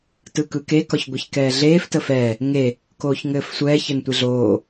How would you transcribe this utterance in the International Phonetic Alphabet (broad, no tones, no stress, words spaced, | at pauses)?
tɯkɯke kɒçɡʷeçkɛːɮeːf təfɛː | ŋe | koːçŋɘːfsʷɛː çɘntʷeɮoː